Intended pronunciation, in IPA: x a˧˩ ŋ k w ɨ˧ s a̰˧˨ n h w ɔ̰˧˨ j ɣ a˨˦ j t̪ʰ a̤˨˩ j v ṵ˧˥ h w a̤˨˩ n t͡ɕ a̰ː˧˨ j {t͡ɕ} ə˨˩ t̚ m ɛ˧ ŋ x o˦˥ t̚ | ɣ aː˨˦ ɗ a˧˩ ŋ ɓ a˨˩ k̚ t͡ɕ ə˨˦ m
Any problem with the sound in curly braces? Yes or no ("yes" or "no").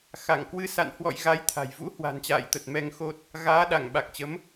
yes